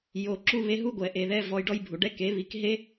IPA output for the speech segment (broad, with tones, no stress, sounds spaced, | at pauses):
j oː˨ ǁ u˧ β e˦ ɦ u˦ ɡʷ ɛ˨ ʔ eː˨ ð ɛ˧ v ɔ˧ j ɖ ɔ˦ j bʱ u˨ ɖ ɛ˦ k e˨˦ β i˧ k ɦ e˦